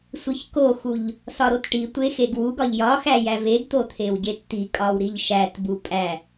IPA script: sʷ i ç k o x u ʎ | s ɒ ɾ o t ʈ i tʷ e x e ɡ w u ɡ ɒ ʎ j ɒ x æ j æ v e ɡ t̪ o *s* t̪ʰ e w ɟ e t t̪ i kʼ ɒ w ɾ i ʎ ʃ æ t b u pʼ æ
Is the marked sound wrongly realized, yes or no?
yes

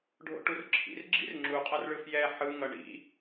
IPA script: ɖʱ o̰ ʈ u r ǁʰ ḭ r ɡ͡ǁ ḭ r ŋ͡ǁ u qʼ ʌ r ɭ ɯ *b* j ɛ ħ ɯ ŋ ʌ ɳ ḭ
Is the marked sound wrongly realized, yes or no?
yes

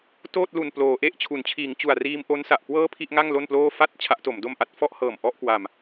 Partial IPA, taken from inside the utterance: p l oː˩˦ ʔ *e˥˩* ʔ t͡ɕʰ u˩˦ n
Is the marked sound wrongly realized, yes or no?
no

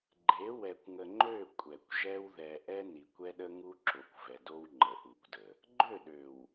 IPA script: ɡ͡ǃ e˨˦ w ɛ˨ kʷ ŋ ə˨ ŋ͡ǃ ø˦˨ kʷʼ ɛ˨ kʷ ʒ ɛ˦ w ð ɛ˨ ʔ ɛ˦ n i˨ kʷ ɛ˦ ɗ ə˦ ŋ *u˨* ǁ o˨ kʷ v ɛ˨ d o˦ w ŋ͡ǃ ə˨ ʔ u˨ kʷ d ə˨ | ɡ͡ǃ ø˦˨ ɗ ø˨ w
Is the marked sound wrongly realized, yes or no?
yes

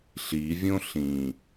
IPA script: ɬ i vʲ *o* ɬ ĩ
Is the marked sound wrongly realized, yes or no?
yes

